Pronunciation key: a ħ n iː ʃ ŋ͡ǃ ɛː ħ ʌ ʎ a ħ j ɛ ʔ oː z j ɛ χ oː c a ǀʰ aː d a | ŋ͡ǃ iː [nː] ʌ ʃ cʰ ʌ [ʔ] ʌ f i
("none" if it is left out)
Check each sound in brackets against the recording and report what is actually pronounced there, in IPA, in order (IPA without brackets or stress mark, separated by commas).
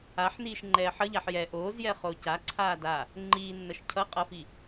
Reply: nː, qʼ